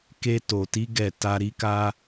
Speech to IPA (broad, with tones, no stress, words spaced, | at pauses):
ke˧to˨ti˨˦ ɡɛ˦˨ ta˧ ɾi˧ka˧